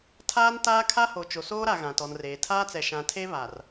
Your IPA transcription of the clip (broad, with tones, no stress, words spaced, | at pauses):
tʰaː˦ntaː˦kʰa˦ho˨ t͡ʃo˨soː˦ɾa˨ ɣã˨tɔ˨nreː˨ tʰaː˦t͡sɛ˨ ʃã˨tʰe˦ βa˨r